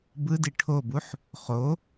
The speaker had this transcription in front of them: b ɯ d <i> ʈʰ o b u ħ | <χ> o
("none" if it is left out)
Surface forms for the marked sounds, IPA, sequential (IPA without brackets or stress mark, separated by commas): i, χ